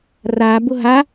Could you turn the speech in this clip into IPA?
r a b ʊ ɦ a

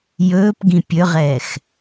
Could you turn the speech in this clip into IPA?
j ɵː p ɡ ĩ pʲ ɵ ʁ ɛː x

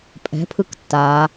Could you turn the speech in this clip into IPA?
pʼ ɛ̤ pʰ ɯ k tː aː

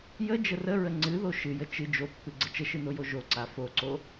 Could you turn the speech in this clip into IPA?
j ə d͡ʒ ə r ə ɹ ə ŋ͡ǀ ɨ ð o ʃ ɨ j ə t͡ʃ ɨ d͡ʒ o pː ɨ ɡ͡ǀ ə t͡ʃ ə ʃ ɨ n o j o ʒ o ǀ a f o ǀ o

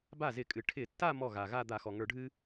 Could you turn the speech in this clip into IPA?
b a˥˩ z ɪ˧˩˧ kʼ ɨ˩ ʈʰ ɪ˧˩˧ tː a˥˧ m ɔ˥˩ ɣ a˩ ɣ a˥˧ d̪ a˧˩˧ x ɔ˩ ŋ ə˞˧˩˧ ɖʱ ɨ˥

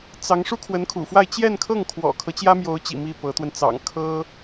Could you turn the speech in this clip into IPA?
t͡s ɑ˧˥ ŋ ʂ u˥ kʰ w ə˧˥ n kʰ ṵ˨˩ f w a˥˧ ɪ̯ t͡ɕ j ɛ˥˧ n kʰ ɤ˥˩ ŋ kʰ w ɔ̰˨˩ kʰ ɤ˦ t͡ɕ j ä˥ m j o˧˥ ʊ̯ t͡ɕ ḭ˨˩ m i˥˩ p ɤ˧˥ t̪ w ə˧ n t͡s ɑ̰˨˩ ŋ kʰ ɤ˥

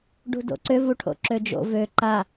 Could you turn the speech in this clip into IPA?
ɖ ṳ d o̰ ǀ ʏ v u ʈʰ o̰ ǁ ø d͡ʒ o̰ v ø ǃ a

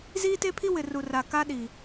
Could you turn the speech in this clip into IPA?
z iː˦ t e˦ pʰ i˦ w ɪ˨ r u˨ r a˨ k a˦ ɗ i˨

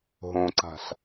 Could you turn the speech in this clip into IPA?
ɦ õ ǀ a̤ ɬ

